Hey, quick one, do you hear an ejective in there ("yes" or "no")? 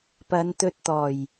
no